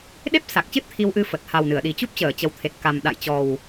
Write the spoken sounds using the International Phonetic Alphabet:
ɗ e˦˥ p̚ s a˨˩ k̚ t͡ɕ ɨ˦˥ t̚ t̪ʰ i˧ w ʔ ɨ˧ f ə˨˩ t̚ h a˨˩ w n ɨ˧˩ ə̯ ɗ i˨˩ t͡ɕ u˦˥ p̚ t͡ɕ əː˧˩ t͡ɕ ə˨˩ w t̪ʰ e˨˩ t̚ k a˨˩ m ɗ a̰˧˨ j t͡ɕ ɔ˨˩ w

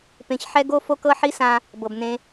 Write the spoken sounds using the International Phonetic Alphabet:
p ẽ˧ ç ħ ɛ˥ ɡ o˥ f o˥ k ɤ˥ ħ i˥ s ã˧ | b ɤ˩ b n ẽ˧

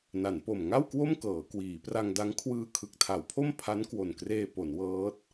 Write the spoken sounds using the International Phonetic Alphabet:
n a˩˦ n p o˨˩ m ŋ a˥˩ w k w o˥˩ m k ɤː˩˦ k w iː˩˦ p r a˧ ŋ d a˦˥ ŋ kʰ w ɯː˧ kʰ ɯ˨˩ k̚ tʰ a˩˦ w pʰ o˥˩ m pʰ a˦˥ n k w o˨˩ n k r eː˧ p o˩˦ n w ɤː˦˥ t̚

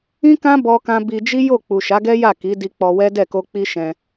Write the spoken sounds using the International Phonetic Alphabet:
ĩ˦ k ã˦ b ɔ˦ k ã˦ b i˧ d͡ʒ i˦ j o˦˨ k͡p u˨ ʃ a˨˦ ɡ ɛ˦ j a˦˨ k i˨˦ d i˧ k͡p ɔ˧ w ɛ˦ d ɛ˦˨ k o˧ k͡p i˦ ʃ ɛ̃˧

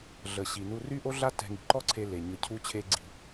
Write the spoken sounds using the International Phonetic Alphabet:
ɮ ə˩ ɕ i˩ n u˧ r y˥ ʔ o˥ ɮ a˥ t ɛ̤˧ ŋ i̤˩ ǃ ɔ˥ ǀʰ e˧ l e˩ ɲ ə˧ cʰ u˥ t͡ɕʰ e˥ ɡ͡ǀ i̤˧

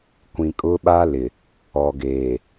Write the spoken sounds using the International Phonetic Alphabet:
kʷ ĩ˨ kʼ ʊ˦ ɓ a˦ l ɪ˨ | ɔ˨ ɡ eː˨

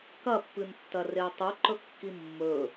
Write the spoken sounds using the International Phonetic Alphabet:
k ɐ pː ɨ n tː ɐ r e i̯ tˤ ɨ ǃ ɵ kː i mː ɵ

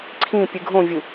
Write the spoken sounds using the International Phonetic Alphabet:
ǀʰ ĩ pʲ ɨ ɡʱ õ vʲ ɯ

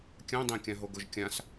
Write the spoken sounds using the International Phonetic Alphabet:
kʲ ã dˤ ẽ kʲ ã ɦ o ɡ o ʒ kʲ ã s

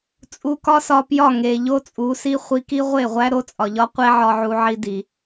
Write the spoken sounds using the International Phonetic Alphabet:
t͡sʼ u˧ k ɒ˦ s ɒ˧ p j ɒ˦˨ ŋ e˨ ʎ o˦ t͡sʼ u˨˦ s i˦ χʷ i˧ k i˦ ʁʷ e˦˨ ʁʷ æ˦ ɾ o˦ t͡sʼ ɒ˨ ʎ ɒ˦ qʷ e˦ ʕ ɒ˧ ʕ u˧ ʕ i˧ d i˨

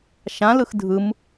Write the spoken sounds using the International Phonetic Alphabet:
ʃ ã l ɯ x dʱ ɯ m

